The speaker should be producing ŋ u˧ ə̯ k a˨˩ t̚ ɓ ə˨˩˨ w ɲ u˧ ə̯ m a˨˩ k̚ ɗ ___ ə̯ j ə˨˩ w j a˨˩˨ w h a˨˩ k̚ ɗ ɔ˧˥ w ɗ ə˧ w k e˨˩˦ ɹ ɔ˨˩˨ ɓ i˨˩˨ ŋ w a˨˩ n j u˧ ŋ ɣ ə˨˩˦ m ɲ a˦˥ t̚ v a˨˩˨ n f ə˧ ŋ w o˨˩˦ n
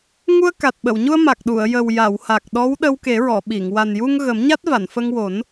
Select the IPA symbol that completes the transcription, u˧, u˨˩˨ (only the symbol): u˨˩˨